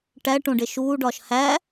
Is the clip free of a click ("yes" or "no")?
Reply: yes